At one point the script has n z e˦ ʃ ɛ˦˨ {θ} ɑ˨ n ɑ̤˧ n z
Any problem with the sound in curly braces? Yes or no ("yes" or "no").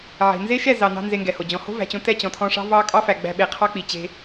yes